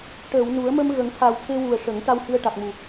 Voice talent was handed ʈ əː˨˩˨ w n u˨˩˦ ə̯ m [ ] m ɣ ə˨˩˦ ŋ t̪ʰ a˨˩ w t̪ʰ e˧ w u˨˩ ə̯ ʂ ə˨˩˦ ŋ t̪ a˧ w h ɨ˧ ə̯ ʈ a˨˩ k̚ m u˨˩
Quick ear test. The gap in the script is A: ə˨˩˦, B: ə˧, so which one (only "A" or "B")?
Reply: B